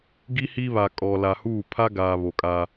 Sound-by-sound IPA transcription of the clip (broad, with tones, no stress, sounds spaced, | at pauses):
ɡ i˦ h i˦ β a˨ kʼ ɔ˨ l a˨ h uː˦˨ pʰ a˦ ɡ aː˨ β o˨ kʼ aː˦